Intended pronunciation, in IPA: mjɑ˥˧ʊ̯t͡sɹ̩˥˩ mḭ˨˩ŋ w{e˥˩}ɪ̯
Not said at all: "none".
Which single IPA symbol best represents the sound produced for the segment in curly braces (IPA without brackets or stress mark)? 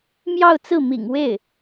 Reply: e˥˩